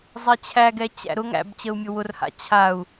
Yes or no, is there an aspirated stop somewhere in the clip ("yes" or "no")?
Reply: yes